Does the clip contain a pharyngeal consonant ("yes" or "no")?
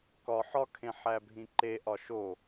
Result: yes